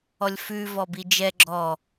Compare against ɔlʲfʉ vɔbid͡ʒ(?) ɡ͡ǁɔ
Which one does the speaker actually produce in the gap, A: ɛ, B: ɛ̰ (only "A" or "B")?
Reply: A